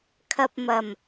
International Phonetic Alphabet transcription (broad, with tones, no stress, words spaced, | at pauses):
kʰɐ˨p̚ mɐ˨˩m